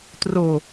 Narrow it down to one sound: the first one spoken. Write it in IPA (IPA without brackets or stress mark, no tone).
t